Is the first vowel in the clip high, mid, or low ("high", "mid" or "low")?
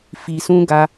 high